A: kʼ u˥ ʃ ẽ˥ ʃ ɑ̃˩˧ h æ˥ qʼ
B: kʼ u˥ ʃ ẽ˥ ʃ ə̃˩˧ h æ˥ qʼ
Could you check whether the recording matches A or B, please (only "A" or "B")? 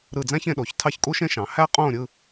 A